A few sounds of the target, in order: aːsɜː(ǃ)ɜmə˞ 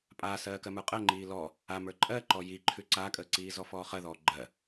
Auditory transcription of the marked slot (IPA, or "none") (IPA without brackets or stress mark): k